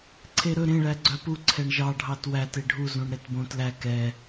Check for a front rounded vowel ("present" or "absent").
present